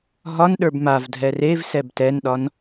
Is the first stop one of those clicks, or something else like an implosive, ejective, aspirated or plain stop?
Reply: implosive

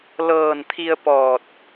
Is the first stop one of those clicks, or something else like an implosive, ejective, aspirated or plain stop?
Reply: aspirated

